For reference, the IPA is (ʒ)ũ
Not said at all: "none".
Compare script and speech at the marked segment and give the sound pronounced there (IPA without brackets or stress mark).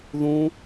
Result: ð